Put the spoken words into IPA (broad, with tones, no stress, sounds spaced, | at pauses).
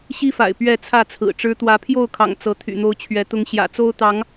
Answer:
ɕ i˦ f a̰˨˩ ɪ̯ p ɥ ɛ˥˨ t͡sʰ ä˥˨ t͡sʰ ɹ̩˨˩ ʈ͡ʂ ɻ̩˦ t̪ w ä˨˦ pʰ j o˥˨ ʊ̯ kʰ ɑ̰˨˩ ŋ t͡s ɤ˨˦ t̪ʰ y̰˨˩ n̪ o˦ ʊ̯ t͡ɕʰ ɥ ɛ˨˦ t̪ ʊ˦ ŋ ɕ j ä̰˨˩ t͡s o˦ ʊ̯ t̪ ɑ˨˦ ŋ